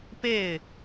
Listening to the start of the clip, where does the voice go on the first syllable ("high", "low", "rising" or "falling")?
falling